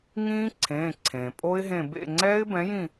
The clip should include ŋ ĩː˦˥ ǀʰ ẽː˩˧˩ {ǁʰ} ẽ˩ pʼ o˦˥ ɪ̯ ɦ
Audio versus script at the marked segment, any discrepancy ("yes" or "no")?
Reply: yes